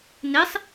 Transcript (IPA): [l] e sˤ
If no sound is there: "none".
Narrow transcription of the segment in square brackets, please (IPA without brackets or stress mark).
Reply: n